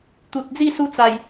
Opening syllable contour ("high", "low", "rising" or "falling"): low